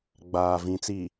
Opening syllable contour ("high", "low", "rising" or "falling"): low